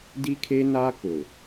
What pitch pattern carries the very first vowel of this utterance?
high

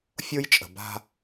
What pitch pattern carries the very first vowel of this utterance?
high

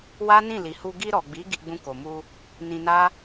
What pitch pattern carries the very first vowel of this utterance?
high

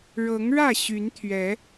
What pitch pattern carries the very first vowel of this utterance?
rising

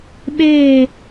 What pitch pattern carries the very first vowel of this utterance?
falling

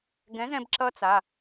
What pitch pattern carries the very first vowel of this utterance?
rising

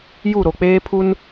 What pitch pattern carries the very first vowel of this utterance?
falling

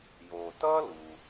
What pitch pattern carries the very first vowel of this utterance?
low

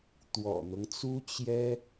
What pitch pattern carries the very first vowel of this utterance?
low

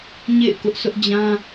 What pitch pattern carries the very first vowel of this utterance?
falling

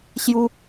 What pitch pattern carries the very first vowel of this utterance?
high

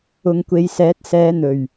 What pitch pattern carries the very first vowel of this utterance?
low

